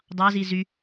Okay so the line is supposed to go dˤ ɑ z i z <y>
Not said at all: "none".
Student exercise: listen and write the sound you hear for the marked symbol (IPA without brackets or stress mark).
y